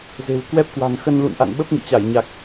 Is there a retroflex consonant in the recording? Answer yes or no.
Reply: no